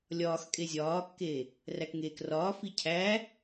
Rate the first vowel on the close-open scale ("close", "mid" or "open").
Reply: open